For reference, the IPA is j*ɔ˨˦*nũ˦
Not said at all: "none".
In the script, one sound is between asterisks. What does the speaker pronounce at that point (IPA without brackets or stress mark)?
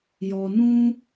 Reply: ɔ˨